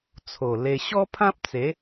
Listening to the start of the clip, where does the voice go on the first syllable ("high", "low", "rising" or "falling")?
low